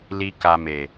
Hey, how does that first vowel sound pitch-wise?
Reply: high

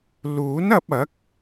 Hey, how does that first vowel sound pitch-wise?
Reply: rising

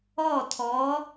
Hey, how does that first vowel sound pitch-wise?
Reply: falling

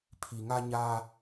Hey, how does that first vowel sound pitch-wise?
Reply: low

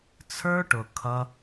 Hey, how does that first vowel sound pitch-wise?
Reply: high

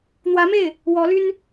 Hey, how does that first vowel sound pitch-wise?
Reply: rising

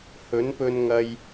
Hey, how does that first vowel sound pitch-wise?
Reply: rising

